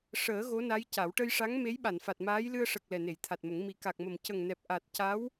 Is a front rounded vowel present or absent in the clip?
absent